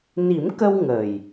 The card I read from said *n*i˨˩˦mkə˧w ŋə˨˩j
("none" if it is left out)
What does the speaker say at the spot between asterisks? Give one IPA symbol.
n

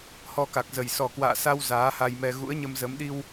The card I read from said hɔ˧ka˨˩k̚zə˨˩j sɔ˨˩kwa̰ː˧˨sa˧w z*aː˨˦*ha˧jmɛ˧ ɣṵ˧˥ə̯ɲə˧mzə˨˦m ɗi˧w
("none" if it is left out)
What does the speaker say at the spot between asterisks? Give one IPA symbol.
aː˨˦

